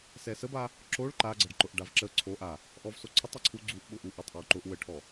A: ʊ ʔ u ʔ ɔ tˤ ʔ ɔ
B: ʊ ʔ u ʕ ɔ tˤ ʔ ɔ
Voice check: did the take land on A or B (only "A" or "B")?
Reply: A